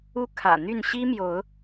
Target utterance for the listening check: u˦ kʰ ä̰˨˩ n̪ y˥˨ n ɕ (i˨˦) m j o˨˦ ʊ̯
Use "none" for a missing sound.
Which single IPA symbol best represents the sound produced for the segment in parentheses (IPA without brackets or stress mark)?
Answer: i˦